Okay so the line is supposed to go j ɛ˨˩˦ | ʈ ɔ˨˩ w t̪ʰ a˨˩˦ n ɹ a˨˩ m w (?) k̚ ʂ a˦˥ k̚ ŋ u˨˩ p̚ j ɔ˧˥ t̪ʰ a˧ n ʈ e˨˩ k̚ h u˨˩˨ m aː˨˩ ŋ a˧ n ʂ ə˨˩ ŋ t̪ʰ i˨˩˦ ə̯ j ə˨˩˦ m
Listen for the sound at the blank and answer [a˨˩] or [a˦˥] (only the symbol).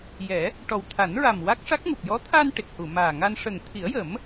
a˦˥